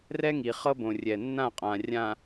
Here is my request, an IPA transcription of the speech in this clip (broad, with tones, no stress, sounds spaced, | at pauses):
r ɛ˦ ŋ i˨ χ ɤ˦ b õ˨ rʲ ɛ˨ nː ã˦˨ qʼ ã˨ rʲ ã˨